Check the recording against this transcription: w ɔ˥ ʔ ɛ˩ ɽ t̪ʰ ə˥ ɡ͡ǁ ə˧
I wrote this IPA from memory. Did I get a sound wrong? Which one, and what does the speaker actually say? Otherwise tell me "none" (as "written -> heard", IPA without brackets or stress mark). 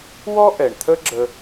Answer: ɽ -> ɳ